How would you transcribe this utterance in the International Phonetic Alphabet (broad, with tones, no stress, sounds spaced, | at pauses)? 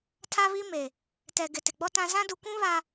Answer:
tʰ a˦ β i˦ m e˨ | t ɛ˨ ɡ ɪ˨ t ɪ˨ ɡ͡b ɔ˦ t ã˦ z ã˦ d u˨ kʷ ũ˦ β a˨